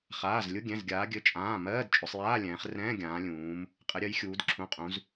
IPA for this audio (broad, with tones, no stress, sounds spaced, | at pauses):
χ aː˩˧˩ z lʲ ʊ˧˥˧ ɡʲ ɛ̃˩˧˩ z ɡʲ aː˩˧ ɡʲ ɘ˩˧˩ t͡ʃʼ ãː˩˧˩ m ɜː˧˥˧ d t͡ʃʼ ʊ˩˧ sˤ j aː˧˥˧ lʲ ɛ̃ː˩˧ χ r ɛ̃ː˧˥˧ ɡʲ ãː˩˧ lʲ ũː˩˧ m | qʼ ɘ˩˧ ɾʲ ɜ˩˧ j xʲ uː˩˧ d ǁʰ ũ˩˧˩ qʼ ũ˩˧ z